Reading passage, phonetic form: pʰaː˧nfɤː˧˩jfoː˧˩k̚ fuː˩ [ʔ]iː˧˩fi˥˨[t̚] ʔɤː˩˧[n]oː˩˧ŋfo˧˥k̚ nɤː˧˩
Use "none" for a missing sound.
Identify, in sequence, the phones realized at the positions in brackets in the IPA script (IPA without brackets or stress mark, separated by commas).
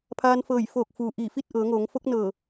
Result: ʔ, t̚, ŋ